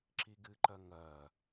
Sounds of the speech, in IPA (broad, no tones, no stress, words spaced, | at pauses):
ǁiɡɨǃɐ ŋɐ